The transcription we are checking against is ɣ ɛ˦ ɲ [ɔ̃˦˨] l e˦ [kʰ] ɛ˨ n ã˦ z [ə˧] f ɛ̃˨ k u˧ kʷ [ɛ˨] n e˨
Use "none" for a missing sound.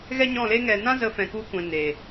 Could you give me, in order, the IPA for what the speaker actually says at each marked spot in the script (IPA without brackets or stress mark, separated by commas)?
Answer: ɔ̃˦˨, ŋ, ə˧, ɛ̃˨